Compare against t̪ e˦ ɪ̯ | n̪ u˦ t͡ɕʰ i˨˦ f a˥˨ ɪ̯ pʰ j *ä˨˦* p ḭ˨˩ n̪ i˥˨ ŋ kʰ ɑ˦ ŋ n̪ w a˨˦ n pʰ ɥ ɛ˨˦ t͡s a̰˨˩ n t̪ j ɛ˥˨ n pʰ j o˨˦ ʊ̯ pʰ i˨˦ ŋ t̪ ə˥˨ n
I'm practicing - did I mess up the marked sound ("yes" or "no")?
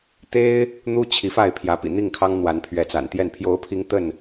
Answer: no